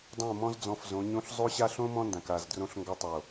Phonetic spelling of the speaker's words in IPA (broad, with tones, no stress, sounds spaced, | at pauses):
dˤ õ˦˨ m ɔ̃˦ z d͡z ɔ̃˧ f z õ˨˦ ɲ õ˧ ɬ zˤ o˦ ɕ a˦ ɬ õ˦ m ɔ̃˦ n d ã˨ k a˦˨ z d r õ˧ ɬ ŋ ɡ ɔ˧ tˤ o˨